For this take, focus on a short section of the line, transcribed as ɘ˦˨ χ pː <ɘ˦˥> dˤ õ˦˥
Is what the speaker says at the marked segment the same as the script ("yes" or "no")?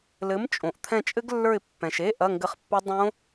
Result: yes